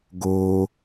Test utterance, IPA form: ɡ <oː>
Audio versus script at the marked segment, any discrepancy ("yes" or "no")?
no